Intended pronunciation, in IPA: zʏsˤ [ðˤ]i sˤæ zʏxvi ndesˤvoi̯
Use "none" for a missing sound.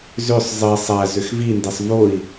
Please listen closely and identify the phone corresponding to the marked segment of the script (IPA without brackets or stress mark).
zˤ